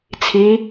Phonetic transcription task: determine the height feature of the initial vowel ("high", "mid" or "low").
high